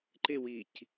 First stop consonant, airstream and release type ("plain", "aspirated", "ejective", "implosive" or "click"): click